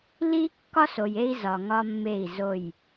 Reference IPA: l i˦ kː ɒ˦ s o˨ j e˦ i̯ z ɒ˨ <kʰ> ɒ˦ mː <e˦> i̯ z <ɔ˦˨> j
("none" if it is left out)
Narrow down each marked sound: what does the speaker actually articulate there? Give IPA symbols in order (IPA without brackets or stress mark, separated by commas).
ŋ, e˦˨, o˦˨